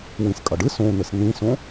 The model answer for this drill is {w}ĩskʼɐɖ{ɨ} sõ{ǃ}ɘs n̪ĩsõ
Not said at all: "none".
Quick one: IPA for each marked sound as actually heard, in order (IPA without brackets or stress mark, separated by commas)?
w, ɨ, n̪